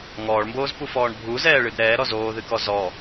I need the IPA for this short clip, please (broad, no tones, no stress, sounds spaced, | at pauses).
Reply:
ŋ ɔː ɭ m b oː z p u f ɔː ɳ bʱ u z ɛː ɭ ɨ d ɾ ɛː ɾ ɔ z oː ð ɨ k ɔ z ɔ